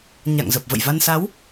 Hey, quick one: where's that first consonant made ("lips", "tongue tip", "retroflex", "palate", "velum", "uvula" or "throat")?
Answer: palate